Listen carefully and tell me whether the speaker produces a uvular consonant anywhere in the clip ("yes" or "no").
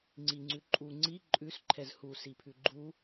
no